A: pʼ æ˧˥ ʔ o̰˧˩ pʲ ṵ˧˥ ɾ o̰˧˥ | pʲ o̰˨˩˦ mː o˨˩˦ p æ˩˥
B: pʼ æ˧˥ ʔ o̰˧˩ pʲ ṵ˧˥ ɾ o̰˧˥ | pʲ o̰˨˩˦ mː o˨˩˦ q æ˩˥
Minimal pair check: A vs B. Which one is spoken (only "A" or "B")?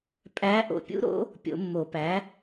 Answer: A